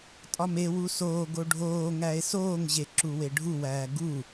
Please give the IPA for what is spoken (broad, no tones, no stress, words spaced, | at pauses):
tʼɒmewu soː ɡoɖʱoːŋæe̯ soːŋʑe ǁuweɖʱuwæː ɡu